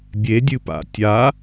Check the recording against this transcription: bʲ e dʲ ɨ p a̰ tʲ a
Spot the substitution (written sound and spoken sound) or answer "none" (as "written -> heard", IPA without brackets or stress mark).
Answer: none